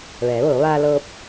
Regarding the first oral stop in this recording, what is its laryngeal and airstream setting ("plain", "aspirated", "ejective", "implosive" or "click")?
plain